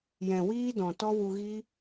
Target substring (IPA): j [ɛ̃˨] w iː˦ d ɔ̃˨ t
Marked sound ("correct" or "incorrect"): correct